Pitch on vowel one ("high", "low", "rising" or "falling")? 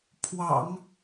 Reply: low